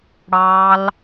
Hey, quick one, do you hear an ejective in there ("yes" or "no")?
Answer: no